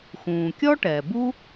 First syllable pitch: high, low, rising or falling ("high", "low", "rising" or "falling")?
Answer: low